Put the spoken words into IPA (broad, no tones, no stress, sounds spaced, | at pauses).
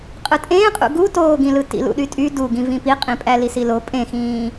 qʼ ɯ tʼ ẽː qʼ ṵ ɡ u t oː ɡ ĩ l ɯ t ḭ l ṵ ɗ y tʼ y d u ɡ ĩ v ĩ p i qʼ ĩ pʼ æ l i s i l o pʼ ẽ x ĩː